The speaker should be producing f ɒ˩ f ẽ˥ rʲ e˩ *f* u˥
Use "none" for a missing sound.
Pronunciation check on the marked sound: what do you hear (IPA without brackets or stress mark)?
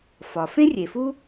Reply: f